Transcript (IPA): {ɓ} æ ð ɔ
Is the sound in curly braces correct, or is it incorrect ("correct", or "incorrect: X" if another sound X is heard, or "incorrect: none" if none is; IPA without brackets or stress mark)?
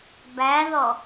incorrect: b